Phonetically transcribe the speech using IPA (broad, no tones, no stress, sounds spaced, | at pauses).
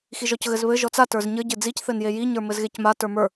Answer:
x i ʒ ɔ c ɣ ɘ z β ɘ ʒ ɔ t͡s a t ə˞ z ɲ ɘ ɟ ɘ d͡z i c θ ɘ n j e j i ɲ ə˞ m ɘ z ɣ e c m a t ə˞ m ə˞